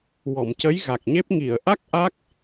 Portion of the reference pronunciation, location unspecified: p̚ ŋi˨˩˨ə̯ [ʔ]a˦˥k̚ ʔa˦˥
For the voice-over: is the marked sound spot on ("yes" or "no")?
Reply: yes